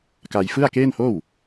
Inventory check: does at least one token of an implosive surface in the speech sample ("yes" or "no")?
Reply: no